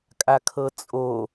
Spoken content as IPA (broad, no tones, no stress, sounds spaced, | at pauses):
kʼ a kʰ ɤ t͡sʼ o